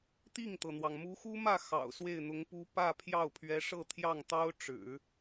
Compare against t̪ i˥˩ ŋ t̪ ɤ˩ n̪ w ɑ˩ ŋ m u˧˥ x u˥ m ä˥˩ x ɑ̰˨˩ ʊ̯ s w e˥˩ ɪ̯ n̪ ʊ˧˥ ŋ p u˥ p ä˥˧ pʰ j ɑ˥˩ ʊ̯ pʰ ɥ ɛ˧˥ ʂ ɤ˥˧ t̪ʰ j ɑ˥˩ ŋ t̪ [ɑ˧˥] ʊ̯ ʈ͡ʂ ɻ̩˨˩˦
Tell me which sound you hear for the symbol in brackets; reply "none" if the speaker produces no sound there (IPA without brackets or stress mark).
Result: ɑ˥